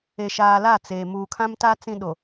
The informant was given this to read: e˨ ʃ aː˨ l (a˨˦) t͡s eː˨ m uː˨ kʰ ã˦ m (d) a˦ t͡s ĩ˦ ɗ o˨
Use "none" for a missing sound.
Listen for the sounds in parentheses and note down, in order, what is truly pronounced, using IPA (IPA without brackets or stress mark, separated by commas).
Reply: a˦˨, t